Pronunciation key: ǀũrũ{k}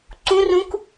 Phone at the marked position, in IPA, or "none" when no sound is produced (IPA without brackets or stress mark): k